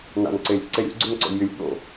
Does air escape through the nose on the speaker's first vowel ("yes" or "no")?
no